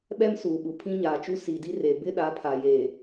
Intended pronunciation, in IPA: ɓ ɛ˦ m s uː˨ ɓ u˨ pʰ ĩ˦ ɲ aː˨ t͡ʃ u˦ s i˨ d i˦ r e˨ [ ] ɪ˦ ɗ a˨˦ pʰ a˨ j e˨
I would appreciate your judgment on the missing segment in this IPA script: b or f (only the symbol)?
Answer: b